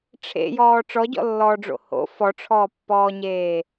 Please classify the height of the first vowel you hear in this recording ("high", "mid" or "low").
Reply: mid